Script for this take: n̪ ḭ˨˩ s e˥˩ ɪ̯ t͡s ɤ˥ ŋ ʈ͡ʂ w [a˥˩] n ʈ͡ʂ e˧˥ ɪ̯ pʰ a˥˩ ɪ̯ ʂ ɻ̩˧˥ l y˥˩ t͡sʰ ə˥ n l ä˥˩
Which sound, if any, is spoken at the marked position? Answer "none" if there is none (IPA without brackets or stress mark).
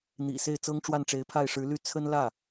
a˥˩